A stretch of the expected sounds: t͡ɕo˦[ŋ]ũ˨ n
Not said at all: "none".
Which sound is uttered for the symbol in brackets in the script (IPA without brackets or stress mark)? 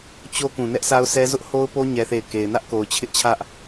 k